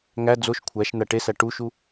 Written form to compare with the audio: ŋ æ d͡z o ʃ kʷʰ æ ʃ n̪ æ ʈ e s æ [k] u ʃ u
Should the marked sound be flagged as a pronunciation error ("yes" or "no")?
yes